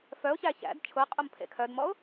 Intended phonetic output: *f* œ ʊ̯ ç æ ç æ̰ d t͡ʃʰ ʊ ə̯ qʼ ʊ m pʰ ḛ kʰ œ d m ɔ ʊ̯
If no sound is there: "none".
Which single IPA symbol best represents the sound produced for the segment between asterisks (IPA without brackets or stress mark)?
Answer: f